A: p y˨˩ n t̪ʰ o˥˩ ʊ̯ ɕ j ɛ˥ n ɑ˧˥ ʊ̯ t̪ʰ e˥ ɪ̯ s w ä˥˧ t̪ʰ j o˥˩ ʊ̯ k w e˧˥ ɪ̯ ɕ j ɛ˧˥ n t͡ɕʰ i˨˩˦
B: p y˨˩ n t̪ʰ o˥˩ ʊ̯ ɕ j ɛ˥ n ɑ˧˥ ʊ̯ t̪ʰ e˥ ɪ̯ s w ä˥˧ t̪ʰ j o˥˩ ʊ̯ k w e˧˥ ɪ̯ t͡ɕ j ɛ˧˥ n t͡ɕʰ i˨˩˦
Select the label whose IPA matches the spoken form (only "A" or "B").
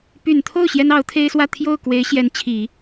A